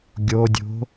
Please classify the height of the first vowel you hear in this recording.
mid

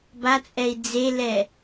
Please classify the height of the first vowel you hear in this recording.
low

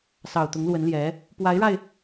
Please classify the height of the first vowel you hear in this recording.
low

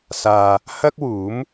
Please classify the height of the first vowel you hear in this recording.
low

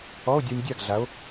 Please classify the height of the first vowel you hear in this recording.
mid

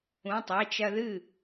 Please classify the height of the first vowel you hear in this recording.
high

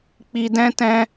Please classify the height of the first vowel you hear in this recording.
high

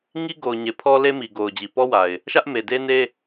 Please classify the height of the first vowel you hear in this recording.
high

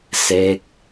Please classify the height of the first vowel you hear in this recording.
mid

